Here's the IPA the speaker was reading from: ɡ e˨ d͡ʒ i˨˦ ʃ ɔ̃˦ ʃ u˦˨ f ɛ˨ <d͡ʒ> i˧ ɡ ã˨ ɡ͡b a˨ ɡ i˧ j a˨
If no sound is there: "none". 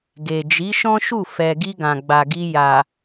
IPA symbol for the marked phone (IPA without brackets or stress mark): ɡ